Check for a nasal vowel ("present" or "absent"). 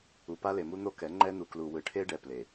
absent